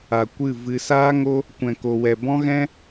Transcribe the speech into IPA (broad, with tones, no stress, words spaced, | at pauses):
a˨ kʷɨ˦˨vɨ˧ saː˦ ŋo˦ | kʷɛ̃˨ko˨wɛ˨ bɔ̃˦ɣɛ̃˦